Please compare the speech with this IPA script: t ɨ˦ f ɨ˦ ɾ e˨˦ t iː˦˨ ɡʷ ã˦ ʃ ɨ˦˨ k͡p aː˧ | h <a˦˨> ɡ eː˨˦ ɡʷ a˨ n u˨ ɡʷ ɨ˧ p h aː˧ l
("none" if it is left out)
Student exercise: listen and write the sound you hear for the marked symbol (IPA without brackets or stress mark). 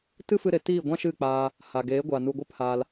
a˨